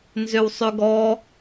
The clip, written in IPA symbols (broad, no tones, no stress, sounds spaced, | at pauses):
n z ø w sˤ ø ɡ ɔ